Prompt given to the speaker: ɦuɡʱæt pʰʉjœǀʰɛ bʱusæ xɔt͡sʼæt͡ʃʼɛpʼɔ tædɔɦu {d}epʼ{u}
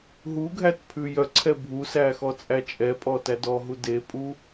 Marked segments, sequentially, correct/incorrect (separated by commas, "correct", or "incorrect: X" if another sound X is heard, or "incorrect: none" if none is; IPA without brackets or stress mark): correct, correct